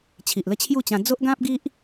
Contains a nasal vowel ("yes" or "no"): yes